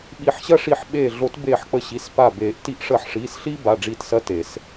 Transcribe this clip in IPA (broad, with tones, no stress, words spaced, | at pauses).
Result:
ɓi˨˩˦ħɕɐ˦ ʂi˧˩ħ ɓeː˧˩ɮo˨˩˦t beː˧˩ħk͡pə˧˩ɕi˩˧˩s pa˧˩ beː˨˩˦ʔ ti˨˩˦ʔʂəː˨˩˦ħʂiː˩˧˩s ɬiː˦ba˩˧˩ ɖ͡ʐiː˧˩t sɐ˦te˨˩˦s